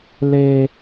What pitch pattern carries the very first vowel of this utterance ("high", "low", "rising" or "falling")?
high